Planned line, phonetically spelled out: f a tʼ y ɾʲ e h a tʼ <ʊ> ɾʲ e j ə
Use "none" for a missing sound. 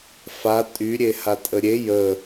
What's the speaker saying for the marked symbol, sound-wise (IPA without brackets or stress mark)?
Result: ə